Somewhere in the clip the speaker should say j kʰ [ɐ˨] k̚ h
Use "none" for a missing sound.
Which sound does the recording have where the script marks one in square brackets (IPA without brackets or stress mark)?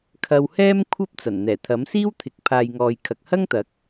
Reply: ɐ˨